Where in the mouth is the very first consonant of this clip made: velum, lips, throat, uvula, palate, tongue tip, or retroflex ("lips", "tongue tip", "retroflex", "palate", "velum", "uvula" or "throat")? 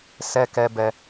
tongue tip